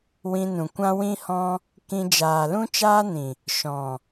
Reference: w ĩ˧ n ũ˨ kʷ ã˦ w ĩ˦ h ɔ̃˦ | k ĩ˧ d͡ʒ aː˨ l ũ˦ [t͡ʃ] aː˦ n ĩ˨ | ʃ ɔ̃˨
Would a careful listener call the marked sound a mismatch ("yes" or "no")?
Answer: no